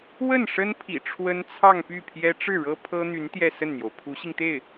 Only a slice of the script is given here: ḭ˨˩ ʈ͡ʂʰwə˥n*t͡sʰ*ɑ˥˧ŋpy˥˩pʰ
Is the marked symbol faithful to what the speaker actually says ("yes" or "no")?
yes